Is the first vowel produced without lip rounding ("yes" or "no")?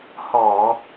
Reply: no